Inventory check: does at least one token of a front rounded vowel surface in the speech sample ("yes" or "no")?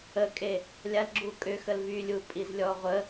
yes